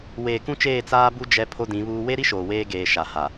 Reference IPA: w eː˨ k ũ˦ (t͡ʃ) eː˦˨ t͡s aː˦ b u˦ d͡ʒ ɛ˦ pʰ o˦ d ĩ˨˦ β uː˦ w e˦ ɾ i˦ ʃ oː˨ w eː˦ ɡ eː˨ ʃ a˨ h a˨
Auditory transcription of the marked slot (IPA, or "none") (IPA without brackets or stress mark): t͡ʃ